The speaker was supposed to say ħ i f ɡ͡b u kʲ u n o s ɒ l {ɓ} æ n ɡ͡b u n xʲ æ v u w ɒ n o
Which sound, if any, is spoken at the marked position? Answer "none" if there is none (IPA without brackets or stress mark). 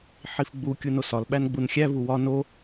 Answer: ɓ